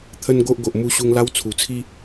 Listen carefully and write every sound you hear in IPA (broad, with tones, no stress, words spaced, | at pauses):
t̪ʰə˦nɡo˦ʔɡo˨ʔ mu˧ɕu˧ŋla˦w t͡sʰu˨˩t͡sʰi˦